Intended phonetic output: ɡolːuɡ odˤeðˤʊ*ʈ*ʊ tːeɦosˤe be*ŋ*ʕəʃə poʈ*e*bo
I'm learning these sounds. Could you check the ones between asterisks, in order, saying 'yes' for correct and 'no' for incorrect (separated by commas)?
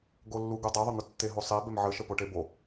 no, no, yes